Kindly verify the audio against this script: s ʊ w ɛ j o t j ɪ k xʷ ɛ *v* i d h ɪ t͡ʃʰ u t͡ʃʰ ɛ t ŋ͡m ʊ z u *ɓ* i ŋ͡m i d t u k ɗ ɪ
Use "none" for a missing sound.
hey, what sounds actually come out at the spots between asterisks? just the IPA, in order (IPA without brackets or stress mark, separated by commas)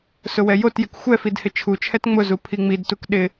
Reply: f, pʰ